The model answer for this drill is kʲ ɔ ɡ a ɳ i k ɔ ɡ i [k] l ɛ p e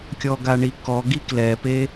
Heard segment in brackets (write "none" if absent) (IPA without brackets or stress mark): k